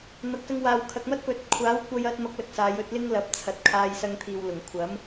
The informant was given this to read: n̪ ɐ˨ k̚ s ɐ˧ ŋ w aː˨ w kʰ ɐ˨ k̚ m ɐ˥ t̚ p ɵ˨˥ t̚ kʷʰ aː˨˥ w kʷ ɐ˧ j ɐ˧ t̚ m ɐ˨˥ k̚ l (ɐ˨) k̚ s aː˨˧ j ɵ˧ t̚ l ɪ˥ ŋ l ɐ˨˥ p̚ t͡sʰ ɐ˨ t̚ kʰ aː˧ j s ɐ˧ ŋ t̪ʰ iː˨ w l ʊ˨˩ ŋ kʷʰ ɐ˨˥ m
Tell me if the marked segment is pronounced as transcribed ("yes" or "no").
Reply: yes